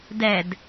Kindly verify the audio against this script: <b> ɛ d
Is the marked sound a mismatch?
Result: yes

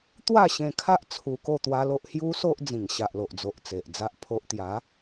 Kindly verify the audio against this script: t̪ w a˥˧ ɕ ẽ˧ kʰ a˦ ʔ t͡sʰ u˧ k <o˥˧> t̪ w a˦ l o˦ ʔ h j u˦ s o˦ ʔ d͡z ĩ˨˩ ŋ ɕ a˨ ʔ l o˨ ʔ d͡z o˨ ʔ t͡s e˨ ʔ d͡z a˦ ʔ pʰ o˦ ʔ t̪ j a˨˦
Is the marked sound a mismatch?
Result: no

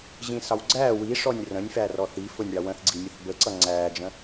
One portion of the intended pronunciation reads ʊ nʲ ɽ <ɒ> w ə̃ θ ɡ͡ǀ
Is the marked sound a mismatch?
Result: yes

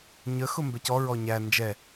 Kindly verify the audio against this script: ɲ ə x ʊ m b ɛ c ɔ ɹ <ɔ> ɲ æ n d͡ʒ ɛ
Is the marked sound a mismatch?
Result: no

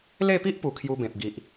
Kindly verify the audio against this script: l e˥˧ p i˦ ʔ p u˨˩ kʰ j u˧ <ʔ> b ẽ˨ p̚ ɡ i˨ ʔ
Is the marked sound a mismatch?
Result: yes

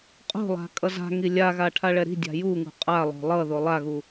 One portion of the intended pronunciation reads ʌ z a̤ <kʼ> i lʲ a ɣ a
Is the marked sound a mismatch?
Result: yes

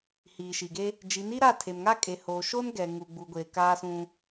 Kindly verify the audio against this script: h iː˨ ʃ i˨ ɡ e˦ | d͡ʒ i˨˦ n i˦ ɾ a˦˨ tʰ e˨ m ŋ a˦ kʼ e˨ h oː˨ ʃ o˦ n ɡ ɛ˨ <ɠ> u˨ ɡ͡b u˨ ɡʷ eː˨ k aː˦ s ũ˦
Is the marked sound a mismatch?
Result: yes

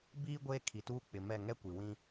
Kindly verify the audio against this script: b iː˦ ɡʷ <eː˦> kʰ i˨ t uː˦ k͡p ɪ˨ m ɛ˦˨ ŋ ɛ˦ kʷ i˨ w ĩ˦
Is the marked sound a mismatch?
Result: no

